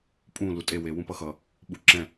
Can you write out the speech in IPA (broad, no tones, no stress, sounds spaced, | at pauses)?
pʼ ũ l u tʼ e w e w ũ p ʌ x ʌ | ɓ u ǁ ɛ̃